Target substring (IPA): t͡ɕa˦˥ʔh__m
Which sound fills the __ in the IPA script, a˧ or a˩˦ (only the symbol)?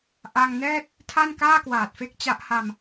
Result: a˧